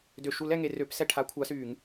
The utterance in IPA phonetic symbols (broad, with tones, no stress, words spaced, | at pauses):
dø˧˩˧ʃu˧˥lɛ˩˧ ŋe˩˧rø˧˥psɛ˥˩ ʈʰa˧˥kʷʰa˧˥syː˧˩˧ŋ